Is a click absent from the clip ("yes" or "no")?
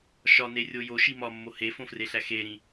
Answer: yes